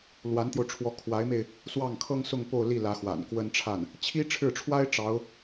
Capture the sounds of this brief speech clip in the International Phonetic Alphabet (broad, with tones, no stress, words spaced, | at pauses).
lwa˧˥nt̪jo˧ʊ̯ʈ͡ʂʰwɔ˧˥ kʰwa˧˥ɪ̯me˧ɪ̯ | swɑ˥˩ŋkʰɤ˥ŋsʊ˥˧ŋ po˥˧ʊ̯li˥˩lä˧˥ xwa̰˨˩nkwə˥nʈ͡ʂʰa˥˩n | t͡ɕʰi˥ʈ͡ʂʰɻ̩˥˩ʈ͡ʂʰwa˥ɪ̯ ʈ͡ʂɑ˧˥ʊ̯